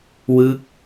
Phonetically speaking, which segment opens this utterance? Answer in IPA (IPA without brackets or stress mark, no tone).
w